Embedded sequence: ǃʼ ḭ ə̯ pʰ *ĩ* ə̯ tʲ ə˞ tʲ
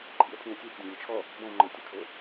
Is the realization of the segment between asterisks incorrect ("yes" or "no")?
no